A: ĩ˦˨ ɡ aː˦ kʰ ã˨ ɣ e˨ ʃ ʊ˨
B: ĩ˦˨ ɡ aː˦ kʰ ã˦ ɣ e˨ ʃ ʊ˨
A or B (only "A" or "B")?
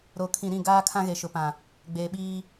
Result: B